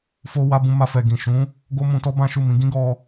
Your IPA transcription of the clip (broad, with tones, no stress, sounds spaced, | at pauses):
f o˧ w a˧ b ũ˧ m a˧ f ɛ˨ ɡ ĩ˨ ʃ ũ˨˦ | ɡ o˦ m ũ˧ t ɔ˦ b ã˦ ʃ u˦˨ m ĩ˨˦ ɡ ĩ˦ ɡ ɔ˧